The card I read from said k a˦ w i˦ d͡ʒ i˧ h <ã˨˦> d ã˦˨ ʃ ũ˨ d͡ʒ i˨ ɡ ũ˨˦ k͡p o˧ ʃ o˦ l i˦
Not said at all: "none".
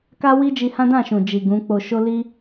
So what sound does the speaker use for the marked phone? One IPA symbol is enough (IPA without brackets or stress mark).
ã˦